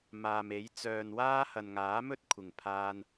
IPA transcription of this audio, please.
m aː˨ m e˨˥ j t͡s œː˨ n w aː˥ h ɐ˨ n ŋ aː˨˥ m ɵ˥ t̚ kʷʰ ɪ˨˩ ŋ pʰ aː˥ n

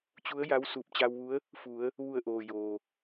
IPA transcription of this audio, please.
t͡ɕ u˧˥ ə̯ j a˧˥ w s uː˧˩ p̚ t͡ɕ a˧ w ʋ u˧˥ ə̯ | f u˩˧ ə̯ | ʋ u˧˩ ə̯ ʔ oː˩ j oː˩

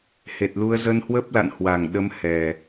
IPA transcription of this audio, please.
h e˨˩ t̚ l u˧ ə̯ z ə˧ n h w ə˦˥ p̚ l a̰˧˨ n h w a˨˩ ŋ ɗ ə˧ m h ɛ˨˩

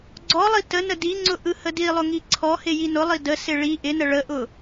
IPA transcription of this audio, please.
ɡ͡ǀ ɔ lˠ i t ə n ə d i ŋ͡ǀ ʊ ʔ ɯ h ə d i lˠ ʊ ŋ i ǀʰ ɔ h ɪ j i n ʊ lˠ i d ə s ɪ ɭ i ʔ ɪ n ə ɭ ə ʔ ʊ

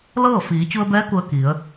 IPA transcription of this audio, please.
l ɤː˥˨ f iː˩˧ t͡ɕ u˧ ə̯ b ɛː˧˥ k u˧ ə̯ k i˩˧ ə̯

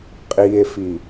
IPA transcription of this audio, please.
qʼ i e̯ f i

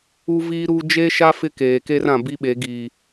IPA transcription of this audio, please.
u˦ v iː˦ ɾ uː˦ d͡ʒ e˦ ʃ a˦ f ɪ˦ k eː˨ k e˦ r ã˨ b i˦ ɓ e˨˦ ɡ iː˨

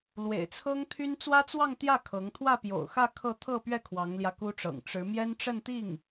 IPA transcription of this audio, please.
l w ḛ˨˩ ɪ̯ t͡sʰ ɤ˥ ŋ t̪ʰ y˥ n t͡s w ä˥ t͡s w ɑ˥˧ ŋ t̪ j ä˥˩ kʰ ɤ˧˥ ŋ t̪ʰ w ä˥˩ p j o̰˨˩ ʊ̯ x ä˥˧ kʰ ɤ˥˧ t̪ʰ ɤ˥˧ p ɥ ɛ˥˩ kʰ w ɑ˧˥ ŋ l j ä˧ k u˥ ʈ͡ʂ ɤ̰˨˩ ŋ ʈ͡ʂ ɻ̩˧˥ m j ɛ˥ n ʈ͡ʂ ə˥˧ n t̪ i˥˩ ŋ

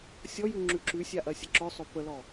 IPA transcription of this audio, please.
sʲ ɔ j ʉ ŋ͡ǁ ʉ ǁ ʉ sʲ a ʔ ɐ sʲ ə ǁ œ sˤ ɵ p ə l ɔ

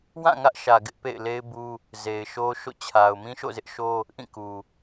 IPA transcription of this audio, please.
w ã˦˨ ŋ ä˦ ʔ ʃ ä˨ ɡ ɪ˦ ʔ p ḛ˦˨ ɪ̯ l e˦ ɪ̯ b u˦ | z e˨ ɪ̯ ʃ o˦ ʃ o̰˦˨ t͡ɕʰ a˨ ʊ̯ m ĩ˦ ʃ o̰˦˨ z ɪ˦ ʔ ʃ o˦ | ʔ ĩ˦˨ k u˨

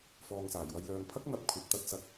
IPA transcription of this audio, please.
f ɔː˨ ŋ s aː˨˩ j w ɐ˨ j l œː˨ ŋ pʰ ɐ˥ k̚ n̪ ɐ˧ p̚ kʷʰ ɐ˨˥ p̚ t̪ ɐ˨˥ t̚ s ɐ˨˥ k̚

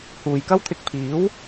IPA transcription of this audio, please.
h uː˨ j k ɐ˥ w t̪ʰ ɪ˧ k̚ pʰ iː˨˥ w

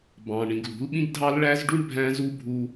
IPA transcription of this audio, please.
b ɑ̃˨ ɳ ĩ˨ ɡ l ṳ˨˦ l ɓ ĩ˦ ɡ dʱ ɑ˦ l ɭ æ˦ z ɖ u˦ ɳ bʱ æ̃˦ z u˦ bʱ u˧

